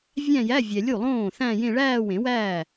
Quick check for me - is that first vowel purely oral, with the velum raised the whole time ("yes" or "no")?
no